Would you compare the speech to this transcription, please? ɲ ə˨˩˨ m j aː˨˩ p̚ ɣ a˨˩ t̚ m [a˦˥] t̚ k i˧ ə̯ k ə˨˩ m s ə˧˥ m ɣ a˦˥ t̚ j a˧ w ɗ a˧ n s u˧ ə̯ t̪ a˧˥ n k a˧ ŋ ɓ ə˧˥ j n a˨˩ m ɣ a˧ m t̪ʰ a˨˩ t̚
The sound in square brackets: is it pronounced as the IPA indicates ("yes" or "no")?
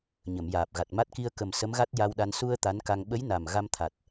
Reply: yes